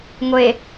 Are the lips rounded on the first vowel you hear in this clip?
no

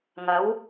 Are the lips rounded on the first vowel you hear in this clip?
no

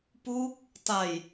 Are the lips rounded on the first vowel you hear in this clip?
yes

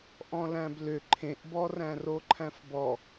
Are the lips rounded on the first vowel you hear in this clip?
yes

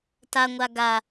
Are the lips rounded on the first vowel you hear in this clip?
no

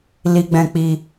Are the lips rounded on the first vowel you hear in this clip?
no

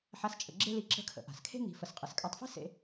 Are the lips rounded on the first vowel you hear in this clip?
no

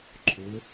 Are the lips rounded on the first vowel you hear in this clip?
yes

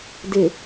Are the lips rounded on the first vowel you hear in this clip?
no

